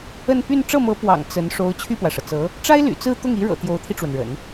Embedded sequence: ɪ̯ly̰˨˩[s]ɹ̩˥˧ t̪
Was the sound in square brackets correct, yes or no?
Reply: no